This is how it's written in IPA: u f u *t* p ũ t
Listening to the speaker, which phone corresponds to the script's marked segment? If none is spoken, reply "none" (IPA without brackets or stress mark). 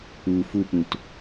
none